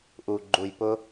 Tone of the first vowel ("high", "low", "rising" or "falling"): low